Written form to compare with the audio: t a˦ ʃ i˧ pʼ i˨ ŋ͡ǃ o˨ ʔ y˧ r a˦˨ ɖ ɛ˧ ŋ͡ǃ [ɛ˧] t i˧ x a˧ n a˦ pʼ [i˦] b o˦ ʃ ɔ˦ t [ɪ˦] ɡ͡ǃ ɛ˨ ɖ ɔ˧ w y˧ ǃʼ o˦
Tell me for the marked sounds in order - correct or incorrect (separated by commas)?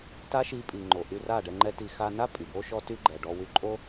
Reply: incorrect, incorrect, incorrect